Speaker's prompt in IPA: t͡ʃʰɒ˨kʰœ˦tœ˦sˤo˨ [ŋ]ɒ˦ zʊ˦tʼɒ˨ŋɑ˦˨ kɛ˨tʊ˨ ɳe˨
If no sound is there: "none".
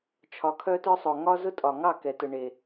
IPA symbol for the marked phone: ŋ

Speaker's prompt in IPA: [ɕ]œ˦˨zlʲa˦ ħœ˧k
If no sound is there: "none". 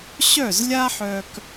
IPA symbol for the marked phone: ɕ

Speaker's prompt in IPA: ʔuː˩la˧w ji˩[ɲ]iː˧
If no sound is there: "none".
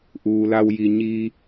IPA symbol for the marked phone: ɲ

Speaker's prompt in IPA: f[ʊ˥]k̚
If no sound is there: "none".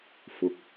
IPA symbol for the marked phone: ʊ˨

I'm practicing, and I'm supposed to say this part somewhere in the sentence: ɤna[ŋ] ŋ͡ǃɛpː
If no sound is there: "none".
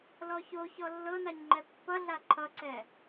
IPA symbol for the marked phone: ɲ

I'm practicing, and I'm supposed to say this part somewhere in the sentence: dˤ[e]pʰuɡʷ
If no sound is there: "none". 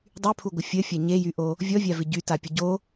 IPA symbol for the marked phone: y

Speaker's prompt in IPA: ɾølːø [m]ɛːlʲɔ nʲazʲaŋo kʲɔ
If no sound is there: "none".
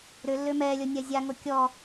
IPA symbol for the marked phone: m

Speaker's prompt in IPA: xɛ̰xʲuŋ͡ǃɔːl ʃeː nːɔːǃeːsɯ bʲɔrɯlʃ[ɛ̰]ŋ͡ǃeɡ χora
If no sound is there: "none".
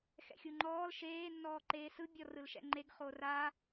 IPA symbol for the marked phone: ɛ̰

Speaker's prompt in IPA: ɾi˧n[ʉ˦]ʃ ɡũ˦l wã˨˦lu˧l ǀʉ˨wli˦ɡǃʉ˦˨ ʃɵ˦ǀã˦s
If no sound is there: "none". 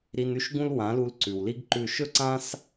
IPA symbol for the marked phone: ʉ˦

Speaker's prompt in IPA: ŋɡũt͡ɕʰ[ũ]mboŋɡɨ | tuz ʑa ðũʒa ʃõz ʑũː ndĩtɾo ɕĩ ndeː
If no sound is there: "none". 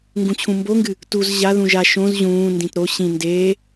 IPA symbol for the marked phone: ũ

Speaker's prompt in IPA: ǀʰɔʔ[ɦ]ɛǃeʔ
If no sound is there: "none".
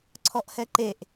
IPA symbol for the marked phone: h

